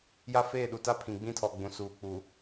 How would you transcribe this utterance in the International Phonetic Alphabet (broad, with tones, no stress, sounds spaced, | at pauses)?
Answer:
j a˦ f eː˦˨ ɗ u˨ t a˦ pʰ ĩ˨ ɡ͡b ĩ˦ tʰ ɔ˨ ɡ͡b ũ˨ s uː˨ k͡p u˨